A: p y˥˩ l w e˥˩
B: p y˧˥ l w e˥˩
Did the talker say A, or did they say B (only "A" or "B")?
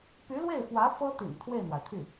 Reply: B